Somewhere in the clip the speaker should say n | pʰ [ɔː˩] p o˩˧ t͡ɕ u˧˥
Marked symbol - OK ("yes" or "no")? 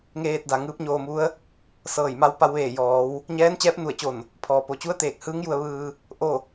yes